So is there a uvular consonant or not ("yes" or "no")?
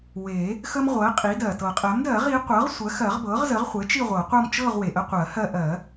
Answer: yes